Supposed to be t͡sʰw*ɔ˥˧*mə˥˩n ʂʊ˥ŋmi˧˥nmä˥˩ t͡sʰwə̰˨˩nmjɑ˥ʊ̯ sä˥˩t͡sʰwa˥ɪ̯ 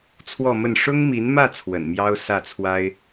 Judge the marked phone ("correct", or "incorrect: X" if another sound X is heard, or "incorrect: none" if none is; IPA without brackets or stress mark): correct